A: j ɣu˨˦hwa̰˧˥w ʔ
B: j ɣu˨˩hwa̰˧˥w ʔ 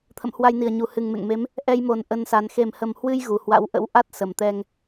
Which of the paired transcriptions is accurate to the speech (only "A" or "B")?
B